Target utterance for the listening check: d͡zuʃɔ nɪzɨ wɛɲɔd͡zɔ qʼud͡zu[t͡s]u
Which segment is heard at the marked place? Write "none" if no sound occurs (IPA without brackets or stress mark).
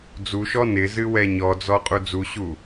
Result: ɕ